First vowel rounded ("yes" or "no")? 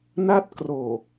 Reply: no